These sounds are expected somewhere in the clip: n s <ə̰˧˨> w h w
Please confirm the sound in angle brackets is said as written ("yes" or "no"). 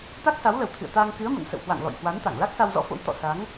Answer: yes